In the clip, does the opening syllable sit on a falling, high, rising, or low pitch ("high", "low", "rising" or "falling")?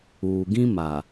low